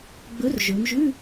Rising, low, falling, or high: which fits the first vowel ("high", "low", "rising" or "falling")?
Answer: rising